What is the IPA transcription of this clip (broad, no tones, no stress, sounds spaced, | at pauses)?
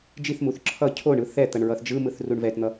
d͡ʒ i θ m u θ ǁʰ ʌ cʰ o ɳ ɯ θ ɛ t̪ ʌ ɳ ɹ ʌ θ d͡ʒ ɯ m ɯ θ r u ɳ v ɛ t n̪ ʌ